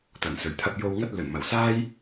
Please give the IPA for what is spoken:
t̪ɐ˨˩nsɵ˨˩ɥt̪ʰɐ˧p̚ jo˧wŋɐ˥t̚lɵ˨˩n mɐ˨˩wsaː˥j

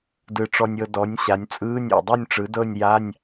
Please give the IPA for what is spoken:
dɯ˧˩ʈ͡ʂɔ˧nʲɤ˧ dɔ˩˥nʲɕa˩˧nʲ t͡sʼɯː˧˥˧nʲɔ̰˧˩dˤu˥˨nʲʈ͡ʂɯ˩˥ dɤ˥˨nʲja˧˥˧nʲ

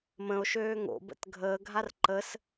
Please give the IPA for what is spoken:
mə̃o̯ʃøː ŋo̰bə̰t ɡʱəːɡʱar ǃəs

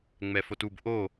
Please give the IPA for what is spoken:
ŋ͡mɛfotub ʔo

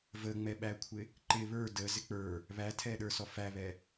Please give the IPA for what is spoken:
vəŋ͡mɛɓækʷʰɪ | ǃɪ βə˞ də zɪk͡pə˞ | βætʰɛɗə˞sɔ fæβɛ

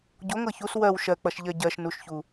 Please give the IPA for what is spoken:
ɟoŋɤ çus wɜw ʃɜk͡pʌʃʎɜ ɟɜʃnuʃçu

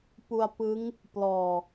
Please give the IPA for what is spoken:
pu˧a̯pɯ˦˥ŋ | plɔː˨˩

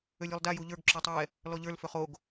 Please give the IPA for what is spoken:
ølʲolˠda juʎə˞ɡ ǁøtˤɛ | lɔʎə˞l føχoɡ

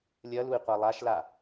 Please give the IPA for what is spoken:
lʲɐlui̯qʷa lˠaʃla

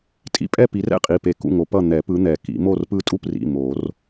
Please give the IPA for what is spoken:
tʼḭ˨˦pʼɛ˥˨ pi˨˦rɛ̰˥˨qʼi˩˧˩pe˨˩˦ kṵ˥˨ŋo˨˦pʌ˥˨ n̪ɛ˨˩˦pɯ˨˦ n̪ɛ˨˩˦kḭ˨˩˦mo˥˨rpɯ˥˨ tʼu˥˨prḭ˩˧˩ mo˨˩˦r

